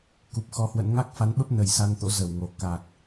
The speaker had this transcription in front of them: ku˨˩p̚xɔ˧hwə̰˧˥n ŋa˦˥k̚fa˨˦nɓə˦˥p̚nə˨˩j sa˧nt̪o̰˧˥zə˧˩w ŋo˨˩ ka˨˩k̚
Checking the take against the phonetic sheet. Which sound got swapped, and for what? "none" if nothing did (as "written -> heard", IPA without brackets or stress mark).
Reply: none